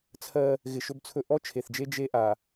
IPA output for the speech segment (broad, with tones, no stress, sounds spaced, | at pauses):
t͡sʰ ɜ˦ | ɣ ɪ˨ ʃ ɵ˦ b t͡sʰ ɵ˦ ʔ ɔ˦ t͡ʃʰ e˨ θ d͡ʒ e˦ d͡ʒ e˦ ʔ a˨